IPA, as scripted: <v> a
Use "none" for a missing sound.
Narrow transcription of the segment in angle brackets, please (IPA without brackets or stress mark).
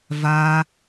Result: v